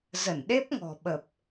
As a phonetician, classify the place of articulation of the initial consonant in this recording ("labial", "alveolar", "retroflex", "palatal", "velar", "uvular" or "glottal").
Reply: alveolar